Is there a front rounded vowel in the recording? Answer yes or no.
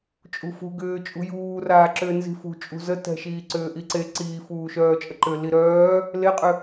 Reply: yes